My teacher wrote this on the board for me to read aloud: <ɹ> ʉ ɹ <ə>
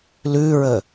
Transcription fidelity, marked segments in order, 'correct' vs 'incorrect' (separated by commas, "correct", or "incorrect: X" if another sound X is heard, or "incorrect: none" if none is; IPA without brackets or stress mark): incorrect: l, correct